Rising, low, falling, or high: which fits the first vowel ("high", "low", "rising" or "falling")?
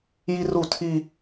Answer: high